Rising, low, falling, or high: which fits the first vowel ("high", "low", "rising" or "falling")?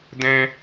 high